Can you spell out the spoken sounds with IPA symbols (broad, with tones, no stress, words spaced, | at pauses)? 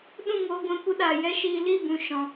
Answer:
ɗũ˦˨ŋoː˧ɡʷɛ̃˧kʷɨ˧ ɗa˨ jɛ˦ʃiː˧ li˦˨ bũ˨ʃɔ̃˨